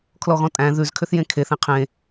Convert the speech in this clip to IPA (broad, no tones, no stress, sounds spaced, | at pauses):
kʰ l ɔ ɣ ɔ̃ tʼ æ̃ ð ʉ z kʰ ʏ θ j ẽ kʰ e θ ẽ qʰ ẽ